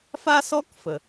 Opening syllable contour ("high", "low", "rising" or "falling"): high